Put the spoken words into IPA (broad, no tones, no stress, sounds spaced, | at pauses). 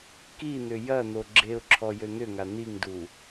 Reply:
k i n̪ ʏ j ɐ n̪ o ɡ͡ǁ e ʊ̯ ǁʰ ɔ j ø n̪ ʏ ŋ a n̪ i ŋ d u